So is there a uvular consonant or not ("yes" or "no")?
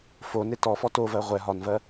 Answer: yes